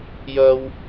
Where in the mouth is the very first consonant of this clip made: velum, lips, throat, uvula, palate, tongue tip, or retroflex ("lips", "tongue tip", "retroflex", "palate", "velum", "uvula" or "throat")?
palate